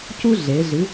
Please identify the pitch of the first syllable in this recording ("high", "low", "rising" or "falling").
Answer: high